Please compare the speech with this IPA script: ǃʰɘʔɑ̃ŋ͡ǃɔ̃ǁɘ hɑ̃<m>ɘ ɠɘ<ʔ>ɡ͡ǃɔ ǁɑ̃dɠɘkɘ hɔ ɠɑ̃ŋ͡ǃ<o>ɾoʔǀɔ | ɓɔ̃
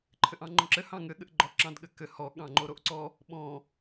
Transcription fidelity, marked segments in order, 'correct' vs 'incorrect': incorrect: ŋ, correct, correct

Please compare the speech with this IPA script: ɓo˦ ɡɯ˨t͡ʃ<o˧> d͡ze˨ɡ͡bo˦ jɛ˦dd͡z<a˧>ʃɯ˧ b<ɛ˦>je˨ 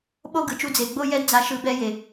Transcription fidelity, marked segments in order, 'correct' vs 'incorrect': incorrect: u˧, correct, correct

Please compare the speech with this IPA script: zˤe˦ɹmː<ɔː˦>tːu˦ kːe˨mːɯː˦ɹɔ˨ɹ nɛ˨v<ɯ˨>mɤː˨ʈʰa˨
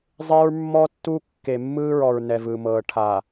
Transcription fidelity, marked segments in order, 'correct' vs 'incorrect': incorrect: ɔ˦, correct

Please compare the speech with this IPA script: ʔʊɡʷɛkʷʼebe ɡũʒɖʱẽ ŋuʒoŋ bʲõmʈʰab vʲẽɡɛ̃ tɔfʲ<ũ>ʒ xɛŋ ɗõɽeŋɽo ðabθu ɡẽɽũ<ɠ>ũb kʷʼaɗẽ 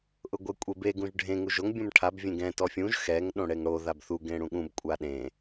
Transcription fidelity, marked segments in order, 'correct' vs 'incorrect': correct, correct

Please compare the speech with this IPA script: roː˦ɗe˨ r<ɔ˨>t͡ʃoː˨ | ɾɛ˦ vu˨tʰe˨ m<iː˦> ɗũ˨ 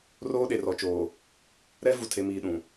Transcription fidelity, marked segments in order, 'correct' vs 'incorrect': correct, incorrect: iː˨

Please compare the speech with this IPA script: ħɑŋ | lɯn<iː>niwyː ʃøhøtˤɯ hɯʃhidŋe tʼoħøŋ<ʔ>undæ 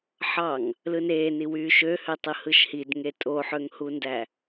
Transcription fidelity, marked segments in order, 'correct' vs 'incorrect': incorrect: eː, incorrect: h

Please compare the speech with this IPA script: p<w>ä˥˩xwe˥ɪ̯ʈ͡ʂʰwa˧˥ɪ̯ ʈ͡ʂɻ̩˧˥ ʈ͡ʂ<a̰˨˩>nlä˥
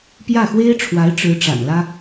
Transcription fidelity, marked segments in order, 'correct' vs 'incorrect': incorrect: j, correct

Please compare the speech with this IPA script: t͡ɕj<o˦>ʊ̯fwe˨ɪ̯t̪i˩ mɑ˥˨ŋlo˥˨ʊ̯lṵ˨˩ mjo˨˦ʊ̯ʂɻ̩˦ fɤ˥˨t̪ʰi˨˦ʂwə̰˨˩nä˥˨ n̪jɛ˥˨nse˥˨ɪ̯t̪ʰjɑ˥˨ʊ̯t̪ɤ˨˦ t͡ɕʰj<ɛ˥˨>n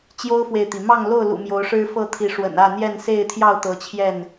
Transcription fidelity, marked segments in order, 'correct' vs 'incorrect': correct, correct

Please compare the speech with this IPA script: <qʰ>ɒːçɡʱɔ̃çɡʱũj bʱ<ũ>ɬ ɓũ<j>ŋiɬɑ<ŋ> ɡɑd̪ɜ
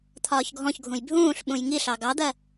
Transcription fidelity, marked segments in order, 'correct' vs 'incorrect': incorrect: t̪ʰ, incorrect: ũː, correct, incorrect: none

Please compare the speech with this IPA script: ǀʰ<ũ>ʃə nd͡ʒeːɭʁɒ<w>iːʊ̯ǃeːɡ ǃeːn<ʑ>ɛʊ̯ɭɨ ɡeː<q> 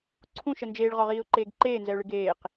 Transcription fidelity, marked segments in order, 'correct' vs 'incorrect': correct, incorrect: ʁ, incorrect: z, correct

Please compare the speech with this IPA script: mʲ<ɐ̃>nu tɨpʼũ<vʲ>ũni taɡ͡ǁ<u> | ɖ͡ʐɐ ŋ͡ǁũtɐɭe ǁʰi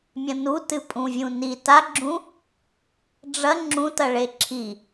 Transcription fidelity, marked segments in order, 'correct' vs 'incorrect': correct, correct, incorrect: ũ

